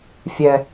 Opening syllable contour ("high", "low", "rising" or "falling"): low